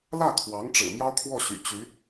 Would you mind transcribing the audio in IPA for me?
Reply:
l ä˥˩ kʰ w ɑ˧˥ ŋ ʈ͡ʂ ɻ̩˨˩ m j ɑ˥ ʊ̯ kʰ w ɔ˥˩ ɕ y̰˨˩ t͡ɕ y˧˥

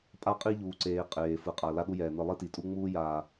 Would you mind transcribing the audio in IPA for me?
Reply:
pʼ a˦ qʼ i˦ ʎ uː˨ ǀ eː˨ qʼ eː˨ f ɯ˨ qʼ a˨ l a˦ ɗ u˦ j ɛː˨ n ɯ˨ lˠ i˦ t i˨ tʼ u˦ ŋ͡m uː˦ j aː˨

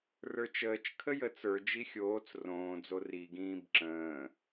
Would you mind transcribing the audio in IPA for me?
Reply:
r ə˞ t͡ʃ əː t͡ʃ kʰ ə j ə t͡s ə˞ d͡ʒ i xʲ oː t͡s r õː d͡z o r i ɡ ĩː b ǁ ə̃ː

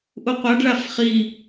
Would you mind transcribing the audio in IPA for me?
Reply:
ʔ u qʷ a ɖ ɭ a f χ i

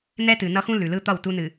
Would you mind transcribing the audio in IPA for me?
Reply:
n̪ ɛ˦ t ɨ˨ n ʌ˦ x ũ˦ l ʉ˨ l ɯ˦ t̪ ʌ˦˨ w t u˦ n ɨ˨

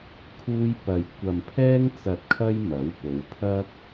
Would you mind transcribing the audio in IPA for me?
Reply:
kʰ uː˥ j p ɐ˧ j kʷ ɐ˧ m pʰ ɛː˥ ŋ t͡s ɐ˧ t̚ kʰ ɐ˥ j m ɐ˨˥ w p o˨˧ w pʰ ɐ˥ k̚

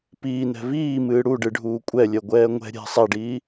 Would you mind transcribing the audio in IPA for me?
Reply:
p iː n ɛ̤ v iː m ɨː ɽ u ɖ ɨ ɖʱ uː kʷʼ ɛ lʲ ɛ ɡʷ ɛː ŋʷ ɛ̤ ɾʲ ɛ̤ sˤ ɛ ɖ iː

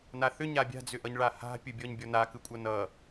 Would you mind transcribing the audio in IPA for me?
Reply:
n a θ ʏ ɲ a bʲ a̤ d͡z ʏ ʔ ʌ ɲ ɭ a h a̤ pʲ ɯ bʲ ɔ ɲ bʲ ɔ n a k ɯ kʷʼ ʌ n ʌ

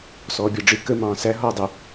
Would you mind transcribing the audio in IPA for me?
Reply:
s ɔː bʲ ʌ ɖ͡ʐ ɪ k ə m ɑ̃ː s æ ɦ ɔː dˤ ɪ

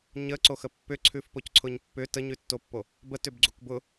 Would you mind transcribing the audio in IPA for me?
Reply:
ɲ ə ǀ o x ə pː ʏ ǀʰ ʉ f p o c ǀʰ ʊ ɲ pː ʏ t ə ɲ ʉ tː o pː o | b ə t ʏ b ɡ͡ǀ u k b ʊ

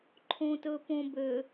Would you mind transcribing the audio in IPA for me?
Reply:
ǃʰ õ t ɵ p õ b ø

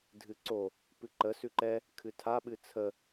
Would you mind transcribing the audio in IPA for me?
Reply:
dʱ ɨ ǀ o | p ɨ ǃ ə s ʉ ǃ ɛ | kʰ ɨ tʰ a ɓ ɨ t͡sʰ ə

